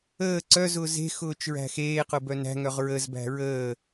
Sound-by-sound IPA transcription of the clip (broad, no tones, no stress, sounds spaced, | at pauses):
əː ǀ œ z ʊː z e̤ x ʊː t͡ʃ ɹ æ̤ x eː q ʊ b œ n æ̤ ŋ œ ʁ ɹ ə z b æ̤ ɹ əː